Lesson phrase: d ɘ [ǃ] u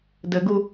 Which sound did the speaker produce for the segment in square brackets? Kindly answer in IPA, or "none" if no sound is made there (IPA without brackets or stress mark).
ɡ